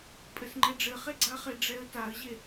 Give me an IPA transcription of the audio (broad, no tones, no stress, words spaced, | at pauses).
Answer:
pʼɘsŋ͡ǃɛɖ͡ʐɘχe ɡ͡ǀaχe ɖ͡ʐɛə̯taə̯ʑe